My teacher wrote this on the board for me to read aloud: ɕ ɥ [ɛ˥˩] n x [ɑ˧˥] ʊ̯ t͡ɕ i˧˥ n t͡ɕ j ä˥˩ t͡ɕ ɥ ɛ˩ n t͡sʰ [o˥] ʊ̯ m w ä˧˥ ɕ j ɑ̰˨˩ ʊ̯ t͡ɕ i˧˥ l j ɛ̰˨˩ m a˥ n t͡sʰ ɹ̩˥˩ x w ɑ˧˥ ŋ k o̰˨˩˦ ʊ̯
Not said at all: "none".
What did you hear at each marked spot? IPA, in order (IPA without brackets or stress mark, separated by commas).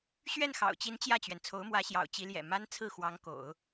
ɛ˥˩, ɑ̰˨˩, o˧˥